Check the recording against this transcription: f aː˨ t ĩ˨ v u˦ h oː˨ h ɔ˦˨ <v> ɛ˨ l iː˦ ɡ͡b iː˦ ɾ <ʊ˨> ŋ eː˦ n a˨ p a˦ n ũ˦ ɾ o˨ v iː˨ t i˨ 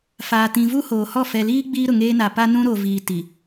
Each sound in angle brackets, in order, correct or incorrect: incorrect, correct

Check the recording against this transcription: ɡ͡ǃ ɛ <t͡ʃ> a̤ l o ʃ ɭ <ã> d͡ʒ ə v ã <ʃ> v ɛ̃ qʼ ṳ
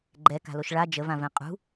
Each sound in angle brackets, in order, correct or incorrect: incorrect, incorrect, incorrect

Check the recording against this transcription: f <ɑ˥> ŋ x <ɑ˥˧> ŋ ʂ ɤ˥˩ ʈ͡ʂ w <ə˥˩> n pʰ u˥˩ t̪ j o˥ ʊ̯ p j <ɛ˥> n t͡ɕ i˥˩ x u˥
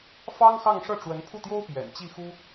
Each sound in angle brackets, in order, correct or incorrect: correct, correct, incorrect, incorrect

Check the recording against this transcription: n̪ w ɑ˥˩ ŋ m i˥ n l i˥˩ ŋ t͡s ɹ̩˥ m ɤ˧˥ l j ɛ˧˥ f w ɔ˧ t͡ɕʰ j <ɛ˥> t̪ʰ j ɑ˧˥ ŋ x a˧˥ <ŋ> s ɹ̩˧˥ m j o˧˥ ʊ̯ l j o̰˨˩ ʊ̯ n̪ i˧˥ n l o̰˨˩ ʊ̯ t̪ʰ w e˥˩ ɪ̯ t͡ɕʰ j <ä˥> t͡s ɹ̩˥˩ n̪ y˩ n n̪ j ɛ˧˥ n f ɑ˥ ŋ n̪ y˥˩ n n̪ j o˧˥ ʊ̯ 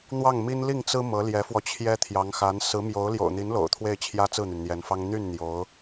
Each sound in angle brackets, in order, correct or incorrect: correct, incorrect, correct

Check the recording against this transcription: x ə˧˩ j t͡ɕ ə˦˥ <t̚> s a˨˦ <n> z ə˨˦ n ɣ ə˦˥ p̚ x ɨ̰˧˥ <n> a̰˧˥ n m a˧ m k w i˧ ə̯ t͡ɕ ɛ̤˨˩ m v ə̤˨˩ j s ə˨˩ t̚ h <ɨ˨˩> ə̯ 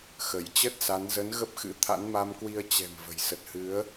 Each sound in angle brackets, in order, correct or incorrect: correct, correct, incorrect, incorrect

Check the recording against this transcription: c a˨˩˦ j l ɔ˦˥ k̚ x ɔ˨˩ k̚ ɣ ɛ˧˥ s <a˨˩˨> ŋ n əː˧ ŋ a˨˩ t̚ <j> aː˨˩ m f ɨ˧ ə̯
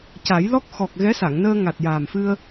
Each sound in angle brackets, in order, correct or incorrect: correct, correct

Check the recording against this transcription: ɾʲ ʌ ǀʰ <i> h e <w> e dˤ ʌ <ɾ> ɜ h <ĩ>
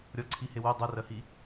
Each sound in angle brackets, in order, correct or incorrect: correct, correct, incorrect, incorrect

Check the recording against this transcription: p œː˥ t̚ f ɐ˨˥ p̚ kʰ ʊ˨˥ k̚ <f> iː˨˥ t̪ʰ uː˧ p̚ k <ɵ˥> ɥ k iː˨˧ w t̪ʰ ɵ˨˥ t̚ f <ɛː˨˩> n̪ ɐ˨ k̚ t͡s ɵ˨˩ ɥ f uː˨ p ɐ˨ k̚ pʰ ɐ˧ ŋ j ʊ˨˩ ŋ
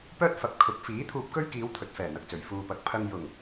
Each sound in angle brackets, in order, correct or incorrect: correct, correct, correct

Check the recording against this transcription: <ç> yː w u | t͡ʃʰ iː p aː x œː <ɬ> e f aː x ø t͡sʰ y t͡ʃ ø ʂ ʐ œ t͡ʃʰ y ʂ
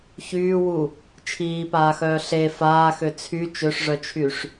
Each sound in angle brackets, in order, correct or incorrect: correct, correct

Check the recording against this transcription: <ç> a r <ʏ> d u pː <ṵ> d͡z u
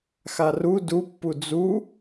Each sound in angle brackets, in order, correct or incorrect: incorrect, incorrect, incorrect

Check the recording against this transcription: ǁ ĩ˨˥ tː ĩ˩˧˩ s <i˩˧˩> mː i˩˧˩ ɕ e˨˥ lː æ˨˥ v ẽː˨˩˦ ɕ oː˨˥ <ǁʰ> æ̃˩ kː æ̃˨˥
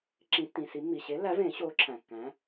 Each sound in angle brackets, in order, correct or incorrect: incorrect, correct

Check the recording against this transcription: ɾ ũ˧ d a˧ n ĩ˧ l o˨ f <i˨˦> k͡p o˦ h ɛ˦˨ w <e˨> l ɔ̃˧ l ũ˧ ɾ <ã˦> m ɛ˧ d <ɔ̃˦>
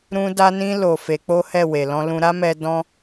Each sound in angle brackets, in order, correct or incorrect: incorrect, correct, incorrect, incorrect

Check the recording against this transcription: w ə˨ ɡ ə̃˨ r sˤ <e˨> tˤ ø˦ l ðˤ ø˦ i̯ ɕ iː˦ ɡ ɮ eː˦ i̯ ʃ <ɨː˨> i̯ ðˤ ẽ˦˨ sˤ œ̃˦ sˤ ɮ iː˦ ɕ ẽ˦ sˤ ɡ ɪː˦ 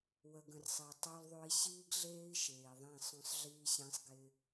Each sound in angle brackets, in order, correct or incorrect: correct, incorrect

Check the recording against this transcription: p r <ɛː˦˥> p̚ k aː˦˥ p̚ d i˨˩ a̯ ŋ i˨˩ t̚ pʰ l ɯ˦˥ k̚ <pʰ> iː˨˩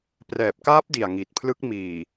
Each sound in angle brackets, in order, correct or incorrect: incorrect, incorrect

